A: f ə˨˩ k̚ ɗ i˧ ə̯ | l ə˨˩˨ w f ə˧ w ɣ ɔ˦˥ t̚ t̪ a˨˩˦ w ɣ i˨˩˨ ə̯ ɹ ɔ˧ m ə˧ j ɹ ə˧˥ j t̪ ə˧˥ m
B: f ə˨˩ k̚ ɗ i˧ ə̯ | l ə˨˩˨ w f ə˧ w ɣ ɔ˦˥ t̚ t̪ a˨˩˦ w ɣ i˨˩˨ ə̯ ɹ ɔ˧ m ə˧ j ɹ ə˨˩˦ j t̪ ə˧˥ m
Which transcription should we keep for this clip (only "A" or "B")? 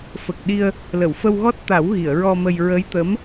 A